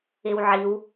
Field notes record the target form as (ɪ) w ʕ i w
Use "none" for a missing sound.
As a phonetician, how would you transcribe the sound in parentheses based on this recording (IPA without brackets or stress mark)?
ɪ